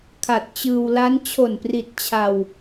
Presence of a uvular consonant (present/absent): absent